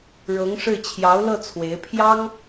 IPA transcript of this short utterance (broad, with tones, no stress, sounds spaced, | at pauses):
ɻ ɤ˧˥ ŋ ʂ ɻ̩˥˩ t͡ɕʰ j ɑ˧˥ ʊ̯ l ɤ˥˩ t͡sʰ w e˧˥ ɪ̯ pʰ j ɑ˥ ŋ